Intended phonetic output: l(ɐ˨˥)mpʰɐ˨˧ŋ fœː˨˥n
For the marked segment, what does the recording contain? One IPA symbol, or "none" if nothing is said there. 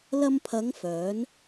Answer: ɐ˧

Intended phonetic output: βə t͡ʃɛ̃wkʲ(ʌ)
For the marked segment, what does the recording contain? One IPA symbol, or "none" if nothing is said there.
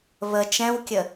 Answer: ə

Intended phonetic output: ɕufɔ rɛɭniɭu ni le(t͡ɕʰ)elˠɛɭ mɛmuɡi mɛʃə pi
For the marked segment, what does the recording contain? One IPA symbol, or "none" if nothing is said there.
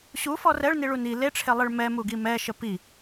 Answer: ʈ͡ʂʰ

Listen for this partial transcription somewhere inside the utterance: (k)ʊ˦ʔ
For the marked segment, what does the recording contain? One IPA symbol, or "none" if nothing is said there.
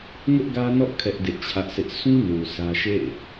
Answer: ŋ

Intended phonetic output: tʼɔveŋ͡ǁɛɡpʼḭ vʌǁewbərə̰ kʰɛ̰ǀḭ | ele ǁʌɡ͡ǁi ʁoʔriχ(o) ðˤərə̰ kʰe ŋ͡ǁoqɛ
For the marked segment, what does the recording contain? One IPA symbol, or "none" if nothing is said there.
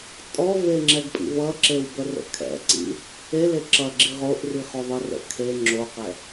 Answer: o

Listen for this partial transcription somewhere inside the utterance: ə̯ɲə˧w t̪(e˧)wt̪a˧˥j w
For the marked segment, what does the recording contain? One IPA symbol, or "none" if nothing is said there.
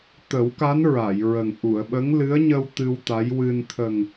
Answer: ɨ˧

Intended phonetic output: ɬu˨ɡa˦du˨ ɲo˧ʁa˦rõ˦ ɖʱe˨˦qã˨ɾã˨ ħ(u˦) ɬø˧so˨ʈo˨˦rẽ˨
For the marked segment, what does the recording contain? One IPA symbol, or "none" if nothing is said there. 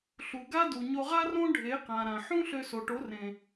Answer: ũ˦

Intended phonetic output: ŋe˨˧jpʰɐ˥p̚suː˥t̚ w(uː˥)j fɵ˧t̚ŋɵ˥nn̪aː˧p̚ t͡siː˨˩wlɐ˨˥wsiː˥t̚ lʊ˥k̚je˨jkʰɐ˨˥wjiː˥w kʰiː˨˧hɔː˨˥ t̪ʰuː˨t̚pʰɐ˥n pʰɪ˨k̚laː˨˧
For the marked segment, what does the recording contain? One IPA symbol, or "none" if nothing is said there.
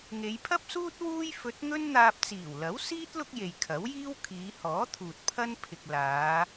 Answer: uː˥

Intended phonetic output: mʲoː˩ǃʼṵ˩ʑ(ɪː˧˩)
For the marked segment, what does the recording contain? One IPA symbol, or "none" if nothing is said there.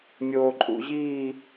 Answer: iː˧˩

